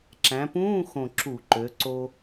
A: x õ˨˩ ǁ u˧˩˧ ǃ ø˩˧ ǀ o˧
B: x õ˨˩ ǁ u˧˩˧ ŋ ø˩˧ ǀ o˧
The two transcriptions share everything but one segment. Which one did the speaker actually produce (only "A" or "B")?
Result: A